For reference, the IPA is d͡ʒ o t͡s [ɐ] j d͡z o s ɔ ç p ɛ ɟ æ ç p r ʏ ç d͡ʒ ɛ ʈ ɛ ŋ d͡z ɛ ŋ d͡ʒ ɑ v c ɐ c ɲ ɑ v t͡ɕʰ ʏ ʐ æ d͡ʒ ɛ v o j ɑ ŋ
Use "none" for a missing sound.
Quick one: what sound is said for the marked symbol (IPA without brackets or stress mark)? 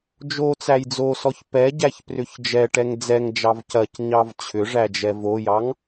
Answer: æ